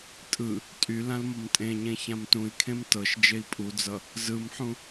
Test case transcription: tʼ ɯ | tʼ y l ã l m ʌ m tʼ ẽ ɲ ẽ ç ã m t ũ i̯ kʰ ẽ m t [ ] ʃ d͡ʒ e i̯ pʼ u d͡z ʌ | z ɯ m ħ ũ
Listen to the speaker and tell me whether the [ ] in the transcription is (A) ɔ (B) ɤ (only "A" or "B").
B